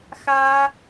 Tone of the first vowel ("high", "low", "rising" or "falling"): high